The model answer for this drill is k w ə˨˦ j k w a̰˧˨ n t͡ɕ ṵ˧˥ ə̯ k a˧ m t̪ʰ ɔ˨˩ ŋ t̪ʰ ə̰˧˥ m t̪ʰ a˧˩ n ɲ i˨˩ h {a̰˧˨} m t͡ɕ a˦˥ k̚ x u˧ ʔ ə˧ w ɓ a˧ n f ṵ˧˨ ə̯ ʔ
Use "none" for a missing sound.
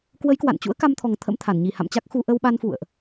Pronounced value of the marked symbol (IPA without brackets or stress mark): a̰˧˨